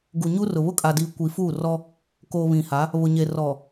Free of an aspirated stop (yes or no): yes